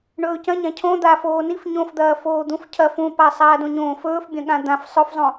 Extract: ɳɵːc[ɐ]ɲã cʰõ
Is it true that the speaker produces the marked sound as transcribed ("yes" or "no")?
no